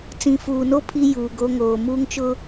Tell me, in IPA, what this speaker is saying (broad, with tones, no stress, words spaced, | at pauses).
t͡sĩ˨fuː˨no˦ pʰi˦ juː˨ɡo˦ŋoː˨ muː˦ŋt͡ʃʊ˦